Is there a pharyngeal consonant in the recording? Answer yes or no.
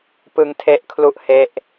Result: no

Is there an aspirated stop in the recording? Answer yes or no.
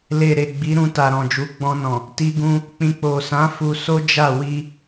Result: no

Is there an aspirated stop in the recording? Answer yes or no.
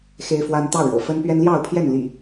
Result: yes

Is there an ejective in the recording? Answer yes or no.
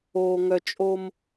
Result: yes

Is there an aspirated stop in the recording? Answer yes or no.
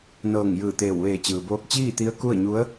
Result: no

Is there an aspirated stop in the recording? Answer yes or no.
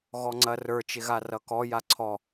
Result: yes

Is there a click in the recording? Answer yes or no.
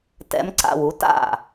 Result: yes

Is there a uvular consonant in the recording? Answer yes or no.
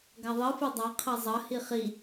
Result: yes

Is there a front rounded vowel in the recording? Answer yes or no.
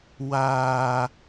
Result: no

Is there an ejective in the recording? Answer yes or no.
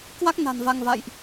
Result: no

